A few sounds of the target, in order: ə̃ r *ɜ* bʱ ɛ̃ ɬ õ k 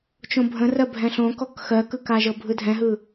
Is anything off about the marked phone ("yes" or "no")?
no